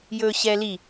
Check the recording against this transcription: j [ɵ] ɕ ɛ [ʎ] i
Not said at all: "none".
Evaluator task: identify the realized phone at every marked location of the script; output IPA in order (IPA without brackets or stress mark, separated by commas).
ɵ, l